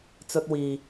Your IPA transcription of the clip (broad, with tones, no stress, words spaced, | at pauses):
t͡sɵ˧t̚wiː˨